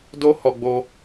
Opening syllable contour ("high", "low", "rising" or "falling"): high